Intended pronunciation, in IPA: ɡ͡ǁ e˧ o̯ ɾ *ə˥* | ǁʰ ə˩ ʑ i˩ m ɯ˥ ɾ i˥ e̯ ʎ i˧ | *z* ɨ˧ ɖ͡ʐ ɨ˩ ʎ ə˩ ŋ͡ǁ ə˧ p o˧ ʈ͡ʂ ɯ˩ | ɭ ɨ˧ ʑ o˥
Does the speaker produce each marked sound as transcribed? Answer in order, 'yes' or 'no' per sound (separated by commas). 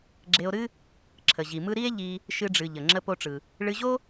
no, no